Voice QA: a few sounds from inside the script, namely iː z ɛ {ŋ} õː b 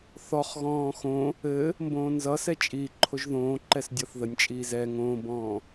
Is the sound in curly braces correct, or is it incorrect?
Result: correct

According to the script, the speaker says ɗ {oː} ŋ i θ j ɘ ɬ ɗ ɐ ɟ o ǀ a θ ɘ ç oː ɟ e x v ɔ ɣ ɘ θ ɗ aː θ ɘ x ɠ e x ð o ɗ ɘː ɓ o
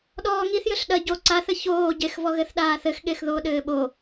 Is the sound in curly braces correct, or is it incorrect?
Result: incorrect: ɔː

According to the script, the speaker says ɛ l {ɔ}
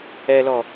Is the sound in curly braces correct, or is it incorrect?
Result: correct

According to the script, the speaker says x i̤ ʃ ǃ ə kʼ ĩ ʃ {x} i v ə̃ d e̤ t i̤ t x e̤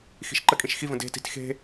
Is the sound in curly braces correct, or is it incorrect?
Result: correct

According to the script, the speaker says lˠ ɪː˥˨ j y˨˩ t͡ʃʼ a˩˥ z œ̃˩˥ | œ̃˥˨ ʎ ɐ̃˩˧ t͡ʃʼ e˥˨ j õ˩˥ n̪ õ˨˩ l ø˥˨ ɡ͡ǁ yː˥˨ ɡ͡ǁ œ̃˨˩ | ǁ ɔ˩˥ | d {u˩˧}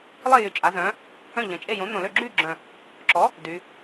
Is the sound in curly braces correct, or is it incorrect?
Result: incorrect: y˩˧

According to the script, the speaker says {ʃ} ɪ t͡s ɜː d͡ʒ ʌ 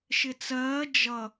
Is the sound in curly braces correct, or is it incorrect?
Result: correct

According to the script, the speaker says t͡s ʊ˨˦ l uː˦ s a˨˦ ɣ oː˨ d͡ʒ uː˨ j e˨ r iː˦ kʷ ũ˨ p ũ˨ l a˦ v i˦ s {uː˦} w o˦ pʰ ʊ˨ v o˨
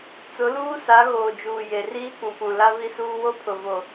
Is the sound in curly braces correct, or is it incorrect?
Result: correct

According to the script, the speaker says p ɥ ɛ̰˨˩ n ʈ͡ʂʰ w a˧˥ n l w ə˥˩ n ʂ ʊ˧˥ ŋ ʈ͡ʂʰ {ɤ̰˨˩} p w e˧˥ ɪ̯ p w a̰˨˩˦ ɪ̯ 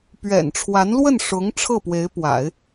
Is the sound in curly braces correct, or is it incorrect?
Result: incorrect: ɤ˥˩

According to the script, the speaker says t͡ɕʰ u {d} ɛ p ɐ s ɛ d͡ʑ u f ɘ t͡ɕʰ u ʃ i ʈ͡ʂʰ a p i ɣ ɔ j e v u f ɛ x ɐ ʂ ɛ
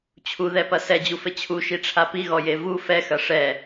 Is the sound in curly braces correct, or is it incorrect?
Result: incorrect: ð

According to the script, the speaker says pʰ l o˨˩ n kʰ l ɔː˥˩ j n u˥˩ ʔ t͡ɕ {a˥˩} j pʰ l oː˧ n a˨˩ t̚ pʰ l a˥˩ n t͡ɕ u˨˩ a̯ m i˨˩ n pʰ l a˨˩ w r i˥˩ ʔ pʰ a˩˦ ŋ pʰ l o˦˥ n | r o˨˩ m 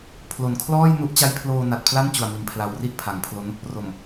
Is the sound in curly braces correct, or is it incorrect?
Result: incorrect: a˦˥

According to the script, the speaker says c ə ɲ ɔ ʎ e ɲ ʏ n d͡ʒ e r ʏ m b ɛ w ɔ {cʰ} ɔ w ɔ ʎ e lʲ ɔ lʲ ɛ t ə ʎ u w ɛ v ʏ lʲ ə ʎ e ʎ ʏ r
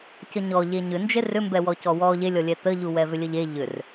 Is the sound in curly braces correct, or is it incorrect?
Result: incorrect: c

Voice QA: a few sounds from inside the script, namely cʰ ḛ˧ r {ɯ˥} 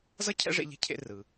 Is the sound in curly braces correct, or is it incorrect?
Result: incorrect: ɯ˩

